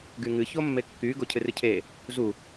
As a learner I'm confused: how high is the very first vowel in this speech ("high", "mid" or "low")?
high